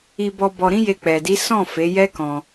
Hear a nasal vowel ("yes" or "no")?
yes